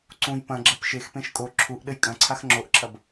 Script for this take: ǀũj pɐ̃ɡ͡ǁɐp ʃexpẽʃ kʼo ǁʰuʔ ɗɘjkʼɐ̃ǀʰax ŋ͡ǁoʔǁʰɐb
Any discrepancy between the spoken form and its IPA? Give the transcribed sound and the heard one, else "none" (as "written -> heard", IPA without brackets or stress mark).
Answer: none